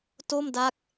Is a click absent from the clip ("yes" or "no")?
yes